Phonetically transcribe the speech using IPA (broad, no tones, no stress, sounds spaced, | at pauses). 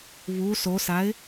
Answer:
β u s o s a ɪ̯